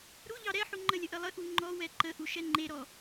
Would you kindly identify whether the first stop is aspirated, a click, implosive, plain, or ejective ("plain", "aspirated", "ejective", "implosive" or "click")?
click